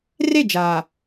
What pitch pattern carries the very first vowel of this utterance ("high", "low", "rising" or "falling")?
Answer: falling